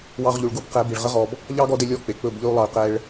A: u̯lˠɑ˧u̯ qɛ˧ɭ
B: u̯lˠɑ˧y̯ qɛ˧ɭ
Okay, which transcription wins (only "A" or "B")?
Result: B